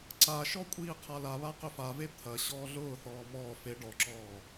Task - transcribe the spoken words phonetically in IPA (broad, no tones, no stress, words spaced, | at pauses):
ǀaʃɔ kʷʼiːqʰalaβa qʏfave t̪ʰɐ ɕɔːɮʊːθɔː mɔː fe ɖɔǁɔː